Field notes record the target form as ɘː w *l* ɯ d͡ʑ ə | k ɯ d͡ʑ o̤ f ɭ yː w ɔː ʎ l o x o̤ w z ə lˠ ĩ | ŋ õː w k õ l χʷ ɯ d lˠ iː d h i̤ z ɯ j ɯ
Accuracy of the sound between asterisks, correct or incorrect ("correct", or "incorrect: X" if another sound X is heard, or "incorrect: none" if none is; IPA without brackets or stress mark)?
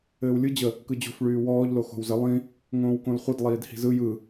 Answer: incorrect: lʲ